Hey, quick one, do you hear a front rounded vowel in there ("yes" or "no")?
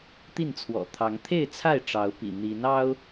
no